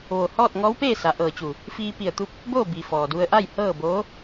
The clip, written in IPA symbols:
ʋ o˧˩ h ɔː˥˨ t̚ ŋ ɔː˧˥ w p eː˥˨ s a˩ ʔ ɤː˧˩ t͡ɕ uː˧˩ | f iː˧ p i˧˩ ə̯ t̪ u˥˨ p̚ | b oː˥˨ b i˩ f ɔː˩ d u˧ ə̯ ʔ a˥˨ j h ɤː˥˨ b oː˧˥

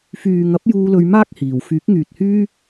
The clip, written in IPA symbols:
f yː˨ ŋ ɐ˨˥ p̚ j uː˧ l ɵ˧ ɥ m aː˥ k̚ h iː˨˩ w f yː˨˥ k̚ ŋ yː˨ t̚ h yː˥

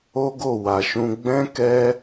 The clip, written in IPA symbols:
o˦ ɡ o˦˨ w a˨ ʃ ũ˧ ɡ͡b ɛ̃˦ k ɛ˦

